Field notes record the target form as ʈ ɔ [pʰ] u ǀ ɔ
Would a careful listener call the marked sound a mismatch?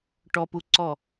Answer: yes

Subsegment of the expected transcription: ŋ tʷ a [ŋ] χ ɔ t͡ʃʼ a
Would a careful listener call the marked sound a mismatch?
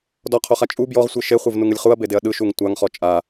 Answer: no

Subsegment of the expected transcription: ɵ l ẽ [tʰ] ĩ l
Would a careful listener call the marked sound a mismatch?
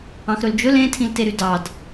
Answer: no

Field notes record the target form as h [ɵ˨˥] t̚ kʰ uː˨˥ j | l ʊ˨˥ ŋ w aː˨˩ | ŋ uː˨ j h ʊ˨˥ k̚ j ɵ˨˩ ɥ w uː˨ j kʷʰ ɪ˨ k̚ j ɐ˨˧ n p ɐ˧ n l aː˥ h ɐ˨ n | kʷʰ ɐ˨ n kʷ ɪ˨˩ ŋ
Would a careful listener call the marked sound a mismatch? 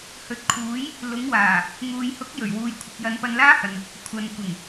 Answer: no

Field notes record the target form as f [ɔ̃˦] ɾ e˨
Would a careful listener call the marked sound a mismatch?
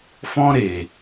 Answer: no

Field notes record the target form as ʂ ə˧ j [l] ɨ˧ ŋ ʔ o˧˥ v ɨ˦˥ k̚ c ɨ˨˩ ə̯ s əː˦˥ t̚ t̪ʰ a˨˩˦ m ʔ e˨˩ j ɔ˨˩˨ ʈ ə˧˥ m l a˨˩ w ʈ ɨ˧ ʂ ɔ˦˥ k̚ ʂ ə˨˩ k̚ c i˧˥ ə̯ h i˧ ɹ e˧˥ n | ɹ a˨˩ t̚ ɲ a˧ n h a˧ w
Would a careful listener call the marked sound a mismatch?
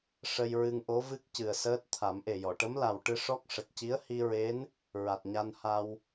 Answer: yes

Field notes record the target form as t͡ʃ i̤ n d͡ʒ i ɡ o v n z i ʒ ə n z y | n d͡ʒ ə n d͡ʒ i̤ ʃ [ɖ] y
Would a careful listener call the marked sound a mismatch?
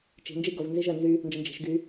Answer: yes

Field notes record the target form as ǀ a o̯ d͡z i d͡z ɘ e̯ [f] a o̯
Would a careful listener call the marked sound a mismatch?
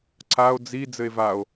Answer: yes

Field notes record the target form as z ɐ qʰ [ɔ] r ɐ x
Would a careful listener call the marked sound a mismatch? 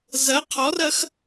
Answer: no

